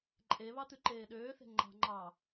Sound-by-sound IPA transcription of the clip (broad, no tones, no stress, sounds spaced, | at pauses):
ǃʼ e β ɑ t̪ ʉ ǃ eː ɗ øː θ e̤ ŋ͡ǃ ɑ̤ ŋ͡ǃ ɑː